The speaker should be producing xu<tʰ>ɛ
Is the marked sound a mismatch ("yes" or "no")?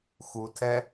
no